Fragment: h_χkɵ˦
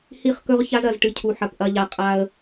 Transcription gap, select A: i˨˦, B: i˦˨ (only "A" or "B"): B